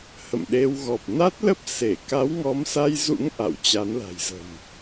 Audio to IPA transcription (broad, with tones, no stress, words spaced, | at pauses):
hə̰˧˨mɗe˧w ɣɔ˨˩p̚na˦˥t̚ lə˦˥p̚ se˧˩ ka˨˦wŋɔ˨˦msa˧jzṵ˧˥ŋ ʔa̰˧˨wt͡ɕa˨˦nla̤˨˩jzə̤˨˩m